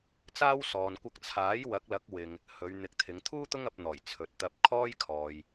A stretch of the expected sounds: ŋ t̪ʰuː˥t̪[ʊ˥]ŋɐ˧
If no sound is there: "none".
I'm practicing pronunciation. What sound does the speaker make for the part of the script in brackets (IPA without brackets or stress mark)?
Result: ʊ˥